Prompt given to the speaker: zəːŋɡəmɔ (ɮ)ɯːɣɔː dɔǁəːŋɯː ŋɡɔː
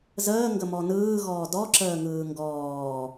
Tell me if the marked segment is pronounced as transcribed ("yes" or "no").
no